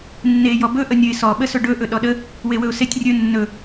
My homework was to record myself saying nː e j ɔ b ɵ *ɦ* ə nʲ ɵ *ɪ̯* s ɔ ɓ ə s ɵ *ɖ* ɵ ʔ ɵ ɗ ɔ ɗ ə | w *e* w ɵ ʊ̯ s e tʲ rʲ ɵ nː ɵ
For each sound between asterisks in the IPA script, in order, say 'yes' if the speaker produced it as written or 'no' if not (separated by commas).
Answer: no, yes, yes, yes